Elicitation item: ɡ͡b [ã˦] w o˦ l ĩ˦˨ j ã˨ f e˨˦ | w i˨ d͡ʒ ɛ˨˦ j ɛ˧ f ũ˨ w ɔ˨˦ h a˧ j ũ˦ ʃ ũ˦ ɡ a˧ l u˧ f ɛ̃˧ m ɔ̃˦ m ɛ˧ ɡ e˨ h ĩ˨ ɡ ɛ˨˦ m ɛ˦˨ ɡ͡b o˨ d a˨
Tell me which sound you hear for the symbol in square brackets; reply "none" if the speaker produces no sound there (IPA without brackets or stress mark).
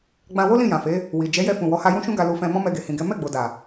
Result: ã˧